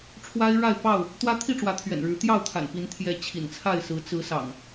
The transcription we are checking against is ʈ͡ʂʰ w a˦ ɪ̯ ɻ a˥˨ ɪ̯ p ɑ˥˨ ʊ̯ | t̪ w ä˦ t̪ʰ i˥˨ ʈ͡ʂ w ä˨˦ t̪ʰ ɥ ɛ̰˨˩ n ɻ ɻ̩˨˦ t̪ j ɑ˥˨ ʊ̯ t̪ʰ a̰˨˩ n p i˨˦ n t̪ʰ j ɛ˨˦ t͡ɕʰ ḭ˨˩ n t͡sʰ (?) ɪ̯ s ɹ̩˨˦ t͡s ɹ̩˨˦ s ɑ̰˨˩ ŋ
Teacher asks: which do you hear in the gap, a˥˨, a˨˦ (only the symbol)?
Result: a˥˨